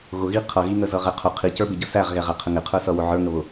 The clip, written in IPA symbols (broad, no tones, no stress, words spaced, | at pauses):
ɣʊɣi qʰʌɣiŋə zʌʁɛqʰʊ qʰicə˞bɪ ɟəsæʁɣɛʁæ qʰəŋɪqʰə˞sʌ wʊʕə˞ŋəβʊ